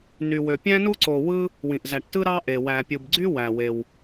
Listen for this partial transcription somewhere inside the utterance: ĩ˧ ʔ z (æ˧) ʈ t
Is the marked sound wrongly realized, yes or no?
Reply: no